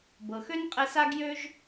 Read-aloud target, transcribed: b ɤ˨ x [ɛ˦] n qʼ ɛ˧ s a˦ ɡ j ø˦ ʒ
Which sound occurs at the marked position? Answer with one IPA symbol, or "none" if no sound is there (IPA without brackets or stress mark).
ø˦